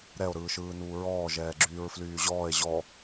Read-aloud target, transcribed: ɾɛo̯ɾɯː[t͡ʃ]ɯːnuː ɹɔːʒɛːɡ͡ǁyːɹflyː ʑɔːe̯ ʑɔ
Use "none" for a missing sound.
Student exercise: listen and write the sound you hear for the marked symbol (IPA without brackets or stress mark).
ʃ